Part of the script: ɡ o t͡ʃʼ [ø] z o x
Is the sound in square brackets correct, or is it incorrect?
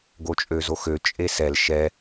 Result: correct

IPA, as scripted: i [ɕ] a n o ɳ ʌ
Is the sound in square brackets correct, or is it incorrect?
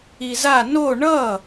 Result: incorrect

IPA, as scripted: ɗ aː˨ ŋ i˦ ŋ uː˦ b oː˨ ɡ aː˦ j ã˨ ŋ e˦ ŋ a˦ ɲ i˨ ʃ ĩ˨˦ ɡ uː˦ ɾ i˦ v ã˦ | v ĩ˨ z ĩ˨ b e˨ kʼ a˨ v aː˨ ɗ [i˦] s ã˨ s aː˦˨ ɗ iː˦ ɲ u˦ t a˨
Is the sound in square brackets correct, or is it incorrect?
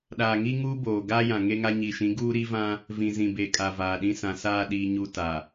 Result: incorrect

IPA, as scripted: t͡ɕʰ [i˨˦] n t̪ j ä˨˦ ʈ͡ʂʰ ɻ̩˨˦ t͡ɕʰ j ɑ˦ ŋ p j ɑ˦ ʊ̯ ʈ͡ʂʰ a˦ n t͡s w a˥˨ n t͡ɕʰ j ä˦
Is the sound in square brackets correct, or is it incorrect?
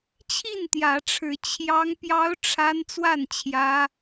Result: incorrect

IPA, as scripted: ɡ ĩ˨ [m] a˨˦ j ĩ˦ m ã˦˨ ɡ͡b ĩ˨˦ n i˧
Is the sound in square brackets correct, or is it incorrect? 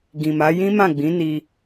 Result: correct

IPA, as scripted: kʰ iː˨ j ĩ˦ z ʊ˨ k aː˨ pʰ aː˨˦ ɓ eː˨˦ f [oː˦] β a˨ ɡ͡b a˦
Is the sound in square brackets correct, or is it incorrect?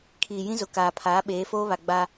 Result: correct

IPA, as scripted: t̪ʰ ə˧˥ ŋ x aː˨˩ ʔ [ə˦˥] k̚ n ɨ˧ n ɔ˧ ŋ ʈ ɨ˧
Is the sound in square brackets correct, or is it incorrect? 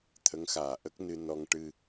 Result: correct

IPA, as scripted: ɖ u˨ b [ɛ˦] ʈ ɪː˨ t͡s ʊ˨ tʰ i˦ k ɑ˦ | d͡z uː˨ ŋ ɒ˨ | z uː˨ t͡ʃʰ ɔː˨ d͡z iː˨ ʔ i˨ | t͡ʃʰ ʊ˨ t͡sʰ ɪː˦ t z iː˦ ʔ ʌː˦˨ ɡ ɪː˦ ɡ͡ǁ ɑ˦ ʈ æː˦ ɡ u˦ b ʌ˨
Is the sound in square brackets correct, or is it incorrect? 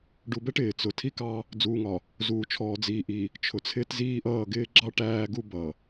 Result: correct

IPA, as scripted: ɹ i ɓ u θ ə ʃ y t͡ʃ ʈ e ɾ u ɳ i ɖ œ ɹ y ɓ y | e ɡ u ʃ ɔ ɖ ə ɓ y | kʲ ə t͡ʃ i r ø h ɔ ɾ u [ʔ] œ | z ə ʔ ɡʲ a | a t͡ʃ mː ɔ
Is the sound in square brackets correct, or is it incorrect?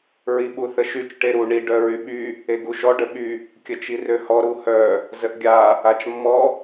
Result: incorrect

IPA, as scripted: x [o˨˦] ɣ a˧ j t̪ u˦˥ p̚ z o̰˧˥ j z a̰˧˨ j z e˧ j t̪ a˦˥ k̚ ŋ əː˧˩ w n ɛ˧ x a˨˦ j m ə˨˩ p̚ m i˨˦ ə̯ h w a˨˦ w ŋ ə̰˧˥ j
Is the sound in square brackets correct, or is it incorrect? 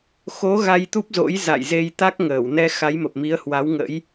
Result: correct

